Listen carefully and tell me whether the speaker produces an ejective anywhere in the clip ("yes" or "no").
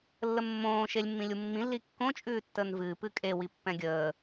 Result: yes